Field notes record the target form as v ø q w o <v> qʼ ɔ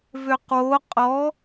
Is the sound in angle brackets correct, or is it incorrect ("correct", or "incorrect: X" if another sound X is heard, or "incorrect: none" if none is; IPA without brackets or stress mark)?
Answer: incorrect: none